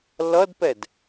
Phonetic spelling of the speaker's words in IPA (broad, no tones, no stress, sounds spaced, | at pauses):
l ʌ d p ɛ d